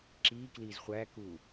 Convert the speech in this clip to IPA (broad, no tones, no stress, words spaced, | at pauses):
ǁiːkliːz χʷækuː